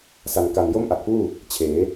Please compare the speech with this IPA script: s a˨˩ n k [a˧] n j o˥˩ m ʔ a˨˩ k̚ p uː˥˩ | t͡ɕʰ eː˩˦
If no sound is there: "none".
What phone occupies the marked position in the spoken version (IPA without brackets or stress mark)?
a˨˩